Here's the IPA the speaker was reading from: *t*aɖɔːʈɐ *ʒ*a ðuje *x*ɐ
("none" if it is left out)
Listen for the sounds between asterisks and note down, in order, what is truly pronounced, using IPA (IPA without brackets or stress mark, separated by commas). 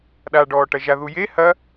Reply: ɗ, ʒ, h